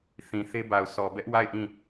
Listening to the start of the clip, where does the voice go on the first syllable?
low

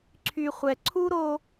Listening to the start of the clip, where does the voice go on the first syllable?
low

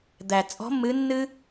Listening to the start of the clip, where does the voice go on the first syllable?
low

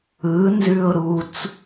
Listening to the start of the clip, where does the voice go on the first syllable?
rising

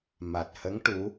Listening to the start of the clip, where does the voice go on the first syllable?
low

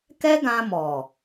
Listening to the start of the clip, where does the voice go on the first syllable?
high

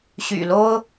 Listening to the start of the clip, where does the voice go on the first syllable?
low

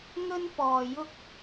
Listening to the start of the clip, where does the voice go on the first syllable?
high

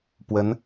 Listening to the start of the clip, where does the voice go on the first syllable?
rising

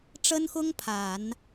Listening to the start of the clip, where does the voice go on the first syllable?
high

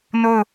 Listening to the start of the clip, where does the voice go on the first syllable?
falling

